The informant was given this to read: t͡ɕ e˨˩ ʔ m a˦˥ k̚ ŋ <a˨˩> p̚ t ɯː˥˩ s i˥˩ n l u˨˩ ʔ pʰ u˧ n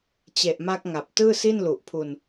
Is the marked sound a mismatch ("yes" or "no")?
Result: no